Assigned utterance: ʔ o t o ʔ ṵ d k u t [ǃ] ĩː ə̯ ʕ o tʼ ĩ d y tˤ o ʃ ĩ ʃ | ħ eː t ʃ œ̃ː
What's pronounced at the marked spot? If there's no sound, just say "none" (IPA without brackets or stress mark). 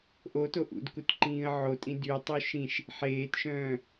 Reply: ǃ